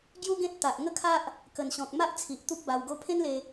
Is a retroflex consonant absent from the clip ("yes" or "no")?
yes